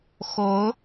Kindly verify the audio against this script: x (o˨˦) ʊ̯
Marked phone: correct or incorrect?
correct